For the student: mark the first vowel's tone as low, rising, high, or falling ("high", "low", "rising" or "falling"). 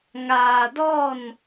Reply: low